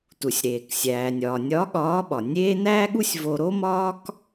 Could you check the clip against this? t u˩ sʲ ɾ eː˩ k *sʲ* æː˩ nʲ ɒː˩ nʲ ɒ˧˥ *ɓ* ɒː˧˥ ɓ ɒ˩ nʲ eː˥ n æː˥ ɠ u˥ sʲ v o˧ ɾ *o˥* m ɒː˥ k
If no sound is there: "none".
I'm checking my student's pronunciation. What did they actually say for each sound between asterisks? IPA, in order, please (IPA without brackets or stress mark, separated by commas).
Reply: sʲ, ɠ, o˥